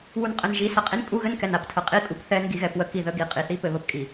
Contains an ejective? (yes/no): yes